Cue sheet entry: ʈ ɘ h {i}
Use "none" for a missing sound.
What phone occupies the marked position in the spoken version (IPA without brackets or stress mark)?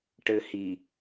i